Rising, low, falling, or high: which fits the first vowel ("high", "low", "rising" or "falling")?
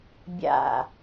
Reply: falling